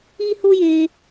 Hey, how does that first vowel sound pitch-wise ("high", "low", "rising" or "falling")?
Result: high